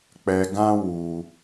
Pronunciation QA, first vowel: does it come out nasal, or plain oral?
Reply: oral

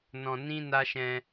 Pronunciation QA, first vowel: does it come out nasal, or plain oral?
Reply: nasal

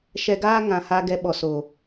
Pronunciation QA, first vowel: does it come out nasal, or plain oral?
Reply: oral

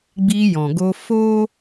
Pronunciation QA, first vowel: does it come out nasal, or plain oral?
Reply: oral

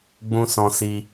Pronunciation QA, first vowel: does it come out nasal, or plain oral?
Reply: nasal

